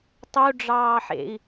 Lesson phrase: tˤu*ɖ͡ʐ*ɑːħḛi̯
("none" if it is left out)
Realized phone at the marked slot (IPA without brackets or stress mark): ɖ͡ʐ